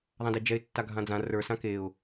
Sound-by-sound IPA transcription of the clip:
ðˤ ã d e d͡ʒ ɛ ɪ̯ tː a ɡʱ ã d͡z ã r ə˞ s ã k e ʊ̯

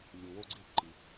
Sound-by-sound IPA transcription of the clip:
lʲ u˨ w o˥ ɡ͡ǀ i˥ ǃ i˨

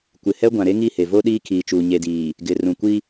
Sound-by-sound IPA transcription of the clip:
kʷ ɪ˨ h ɛ˦ ɡʷ ã˨ ɾ e˦ ŋ i˦˨ h e˨ v o˦ ɗ iː˦ kʰ iː˨ t͡ʃ uː˨ ɲ e˨ d iː˨ | ɡ ɪ˨ r ũ˨ kʷ i˦

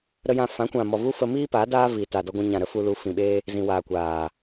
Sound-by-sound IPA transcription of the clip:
ɾ ə˧ j ã˧ f ã˨˦ kʷ ã˨ m ɔ˨ v u˦ f ə˧ m iː˦ p aː˨˦ d aː˦ v iː˨ t aː˨ d ɔ˧ ɡʷ ã˧ ɲ ã˨ ɾ ə˦ f u˧ l u˨˦ f ĩ˨ ɓ eː˦ | z ĩ˨ w aː˨ kʷ aː˨

